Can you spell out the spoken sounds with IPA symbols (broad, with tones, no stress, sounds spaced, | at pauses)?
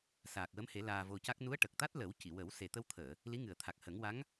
s aː˨˩ k̚ w ə˧˥ m h e˨˩˦ l aː˧ v o˧ c a˦˥ k̚ n u˧˥ ə̯ ʈ ə˨˩ k̚ t̪ a˦˥ t̚ l ə˨˩˦ w c i˨˩˨ w ə˨˩˦ w s e˨˩ t̪ ə˧ w t̪ʰ əː˨˩˨ | l i˧˥ ŋ ɨ˨˩ ə̯ t̪ʰ a˨˩ k̚ h ə˨˩˦ ŋ w a˧˥ ŋ